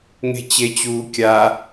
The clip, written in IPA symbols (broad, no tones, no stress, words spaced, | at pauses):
ŋe̤t͡ɕet͡ɕuː kʲa